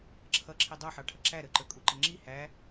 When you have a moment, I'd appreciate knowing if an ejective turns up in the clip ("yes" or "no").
yes